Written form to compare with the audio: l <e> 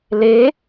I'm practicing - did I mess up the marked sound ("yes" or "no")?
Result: no